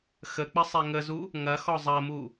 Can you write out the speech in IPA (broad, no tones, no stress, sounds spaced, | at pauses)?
x ə k͡p ə sˤ e ŋ ə z u | ŋ ɐ x ɔ zˤ ɐ m u